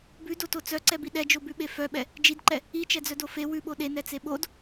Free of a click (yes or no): no